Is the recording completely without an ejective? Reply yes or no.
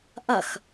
yes